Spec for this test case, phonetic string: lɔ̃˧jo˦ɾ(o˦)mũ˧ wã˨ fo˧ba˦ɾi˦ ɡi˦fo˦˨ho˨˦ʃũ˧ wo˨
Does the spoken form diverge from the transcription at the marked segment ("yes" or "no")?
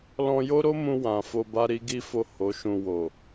no